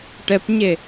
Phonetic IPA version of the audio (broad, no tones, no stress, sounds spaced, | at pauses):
ʈ ɛ p ɲ e